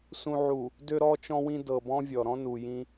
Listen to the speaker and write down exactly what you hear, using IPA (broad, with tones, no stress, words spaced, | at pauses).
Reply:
sũ˨ʕu˨ | dø˨ɾɔ˨t͡ʃɔ̃˨wĩ˨ dɤ˨bɔ̃˦vʲɔ˨ ɾɔ̃˦nu˨jĩ˦